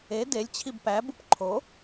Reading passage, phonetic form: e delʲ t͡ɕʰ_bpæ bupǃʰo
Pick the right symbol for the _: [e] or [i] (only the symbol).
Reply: i